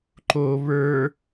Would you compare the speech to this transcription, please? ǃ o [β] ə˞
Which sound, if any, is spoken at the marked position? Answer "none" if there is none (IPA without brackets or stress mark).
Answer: β